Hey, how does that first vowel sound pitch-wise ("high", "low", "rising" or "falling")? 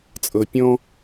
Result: low